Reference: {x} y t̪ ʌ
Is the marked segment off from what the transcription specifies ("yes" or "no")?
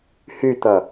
yes